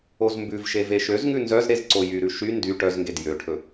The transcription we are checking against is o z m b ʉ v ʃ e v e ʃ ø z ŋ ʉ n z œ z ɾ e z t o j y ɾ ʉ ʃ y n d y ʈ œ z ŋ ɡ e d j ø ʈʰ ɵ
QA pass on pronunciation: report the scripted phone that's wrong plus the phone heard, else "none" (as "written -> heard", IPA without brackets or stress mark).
t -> ǀ